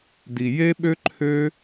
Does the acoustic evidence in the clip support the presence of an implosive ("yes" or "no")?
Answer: yes